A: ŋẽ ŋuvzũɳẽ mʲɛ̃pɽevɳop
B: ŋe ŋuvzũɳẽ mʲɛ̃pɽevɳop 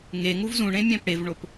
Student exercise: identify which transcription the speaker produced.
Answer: B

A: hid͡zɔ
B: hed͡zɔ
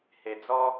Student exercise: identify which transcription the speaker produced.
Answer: B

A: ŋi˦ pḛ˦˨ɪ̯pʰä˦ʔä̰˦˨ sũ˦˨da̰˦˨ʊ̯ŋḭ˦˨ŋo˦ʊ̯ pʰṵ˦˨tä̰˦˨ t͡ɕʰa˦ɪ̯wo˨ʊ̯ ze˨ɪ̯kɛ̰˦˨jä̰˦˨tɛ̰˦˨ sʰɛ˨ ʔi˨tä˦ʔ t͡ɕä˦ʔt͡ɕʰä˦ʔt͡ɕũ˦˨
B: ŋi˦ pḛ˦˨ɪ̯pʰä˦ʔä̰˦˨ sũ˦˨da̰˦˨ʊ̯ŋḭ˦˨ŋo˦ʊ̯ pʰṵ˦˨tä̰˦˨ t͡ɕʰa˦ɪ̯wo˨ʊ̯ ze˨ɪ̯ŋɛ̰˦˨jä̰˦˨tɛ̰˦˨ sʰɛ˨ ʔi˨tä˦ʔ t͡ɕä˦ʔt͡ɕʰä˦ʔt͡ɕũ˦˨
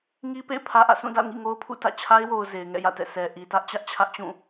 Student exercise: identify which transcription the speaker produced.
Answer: B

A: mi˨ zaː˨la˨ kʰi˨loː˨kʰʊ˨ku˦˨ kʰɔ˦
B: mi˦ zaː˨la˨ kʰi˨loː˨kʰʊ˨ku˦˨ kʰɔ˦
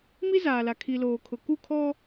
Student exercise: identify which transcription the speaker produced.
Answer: B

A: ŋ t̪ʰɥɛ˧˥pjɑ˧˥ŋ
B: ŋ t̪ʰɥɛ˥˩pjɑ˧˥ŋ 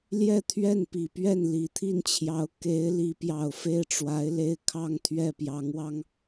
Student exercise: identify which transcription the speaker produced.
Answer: B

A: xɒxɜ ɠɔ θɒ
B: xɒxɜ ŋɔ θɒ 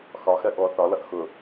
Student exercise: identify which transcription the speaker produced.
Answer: A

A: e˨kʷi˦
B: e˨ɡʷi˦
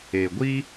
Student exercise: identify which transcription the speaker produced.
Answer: B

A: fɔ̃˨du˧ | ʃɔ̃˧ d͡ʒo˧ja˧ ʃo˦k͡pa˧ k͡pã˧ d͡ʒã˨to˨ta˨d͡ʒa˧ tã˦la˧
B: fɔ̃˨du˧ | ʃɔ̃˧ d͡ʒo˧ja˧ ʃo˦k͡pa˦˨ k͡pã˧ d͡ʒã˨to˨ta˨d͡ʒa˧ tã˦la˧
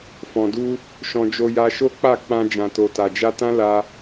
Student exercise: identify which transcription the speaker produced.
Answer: B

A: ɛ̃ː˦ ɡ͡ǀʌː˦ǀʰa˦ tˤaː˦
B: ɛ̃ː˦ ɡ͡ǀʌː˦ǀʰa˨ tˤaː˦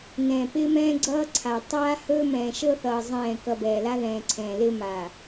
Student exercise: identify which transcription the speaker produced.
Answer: B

